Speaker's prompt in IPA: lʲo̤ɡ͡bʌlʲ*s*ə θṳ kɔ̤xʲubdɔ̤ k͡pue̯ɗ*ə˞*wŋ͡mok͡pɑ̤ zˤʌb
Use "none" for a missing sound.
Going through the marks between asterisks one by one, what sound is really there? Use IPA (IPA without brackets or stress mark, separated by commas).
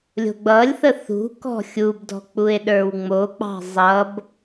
θ, ə˞